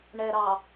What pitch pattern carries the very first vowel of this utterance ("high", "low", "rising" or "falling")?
low